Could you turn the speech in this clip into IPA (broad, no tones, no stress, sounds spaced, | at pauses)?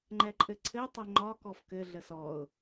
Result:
ŋ͡ǃ ɛ ǃʼ ɘ ǀʰ ɘ tˤ ɘ ŋ͡ǃ ɒ k ɔ f k ɘ ɮ ə s ɔ ʊ̯